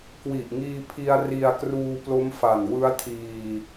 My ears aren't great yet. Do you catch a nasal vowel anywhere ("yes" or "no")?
no